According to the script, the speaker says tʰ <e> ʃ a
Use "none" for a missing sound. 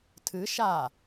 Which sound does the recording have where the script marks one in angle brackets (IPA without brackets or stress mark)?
ɨ